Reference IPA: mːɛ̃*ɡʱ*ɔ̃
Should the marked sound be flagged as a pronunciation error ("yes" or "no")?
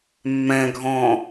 no